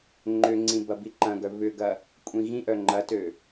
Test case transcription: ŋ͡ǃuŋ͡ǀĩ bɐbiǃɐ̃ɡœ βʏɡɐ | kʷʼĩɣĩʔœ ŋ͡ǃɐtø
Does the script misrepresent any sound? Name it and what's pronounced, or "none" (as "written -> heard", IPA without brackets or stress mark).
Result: u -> ʏ